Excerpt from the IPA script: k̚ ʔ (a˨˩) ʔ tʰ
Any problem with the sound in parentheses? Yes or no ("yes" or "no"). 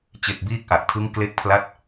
no